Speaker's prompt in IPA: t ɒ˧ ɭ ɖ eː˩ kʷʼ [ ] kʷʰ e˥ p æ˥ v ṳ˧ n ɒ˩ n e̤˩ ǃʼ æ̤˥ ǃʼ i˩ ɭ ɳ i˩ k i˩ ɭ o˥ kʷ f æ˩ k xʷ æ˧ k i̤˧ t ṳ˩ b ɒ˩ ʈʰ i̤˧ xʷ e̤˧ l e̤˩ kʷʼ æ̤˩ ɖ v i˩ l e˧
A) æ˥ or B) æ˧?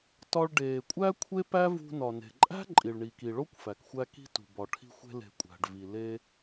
A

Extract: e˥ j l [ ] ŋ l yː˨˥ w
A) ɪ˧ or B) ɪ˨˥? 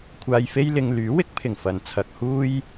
A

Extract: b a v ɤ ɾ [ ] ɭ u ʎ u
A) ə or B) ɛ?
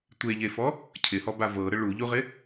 A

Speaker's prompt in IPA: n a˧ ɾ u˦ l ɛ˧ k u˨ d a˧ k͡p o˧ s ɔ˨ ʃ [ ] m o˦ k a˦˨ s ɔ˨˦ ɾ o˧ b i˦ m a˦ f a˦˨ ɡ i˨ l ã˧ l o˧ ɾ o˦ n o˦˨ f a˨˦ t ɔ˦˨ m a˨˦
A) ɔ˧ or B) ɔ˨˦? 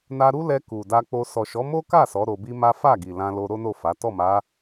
B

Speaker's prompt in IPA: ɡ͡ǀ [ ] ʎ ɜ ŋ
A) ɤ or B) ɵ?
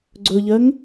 B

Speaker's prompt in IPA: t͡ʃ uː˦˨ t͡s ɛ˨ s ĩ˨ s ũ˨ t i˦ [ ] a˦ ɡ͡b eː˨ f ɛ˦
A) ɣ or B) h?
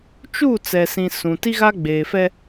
A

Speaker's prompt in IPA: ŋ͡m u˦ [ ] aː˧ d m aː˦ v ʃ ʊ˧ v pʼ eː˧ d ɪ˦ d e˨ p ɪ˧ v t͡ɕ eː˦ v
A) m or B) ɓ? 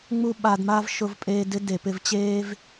B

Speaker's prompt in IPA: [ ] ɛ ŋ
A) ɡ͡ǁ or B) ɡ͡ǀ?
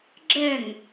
A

